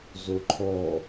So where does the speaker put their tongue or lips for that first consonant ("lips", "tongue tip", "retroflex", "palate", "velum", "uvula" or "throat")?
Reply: tongue tip